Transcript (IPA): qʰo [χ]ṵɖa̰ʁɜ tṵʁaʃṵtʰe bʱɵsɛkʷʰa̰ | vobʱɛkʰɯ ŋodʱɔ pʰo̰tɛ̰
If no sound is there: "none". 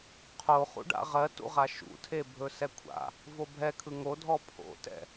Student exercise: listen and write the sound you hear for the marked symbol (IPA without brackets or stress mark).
χ